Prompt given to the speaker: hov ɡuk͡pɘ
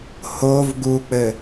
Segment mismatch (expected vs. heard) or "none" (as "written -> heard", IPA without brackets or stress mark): none